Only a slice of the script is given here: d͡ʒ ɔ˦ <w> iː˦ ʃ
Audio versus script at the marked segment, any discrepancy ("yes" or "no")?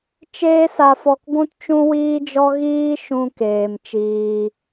yes